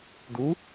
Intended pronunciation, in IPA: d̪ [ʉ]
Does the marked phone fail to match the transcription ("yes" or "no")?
yes